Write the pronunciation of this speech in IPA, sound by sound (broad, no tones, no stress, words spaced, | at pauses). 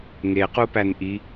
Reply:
ŋequpæn ʔi